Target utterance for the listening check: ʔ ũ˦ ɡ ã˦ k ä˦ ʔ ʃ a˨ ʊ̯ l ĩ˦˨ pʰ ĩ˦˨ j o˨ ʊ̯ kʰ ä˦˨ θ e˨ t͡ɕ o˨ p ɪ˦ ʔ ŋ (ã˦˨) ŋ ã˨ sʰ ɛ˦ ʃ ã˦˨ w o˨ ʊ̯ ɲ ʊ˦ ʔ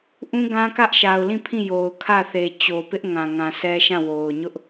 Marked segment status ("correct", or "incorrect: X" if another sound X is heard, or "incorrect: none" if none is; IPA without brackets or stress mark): incorrect: ã˨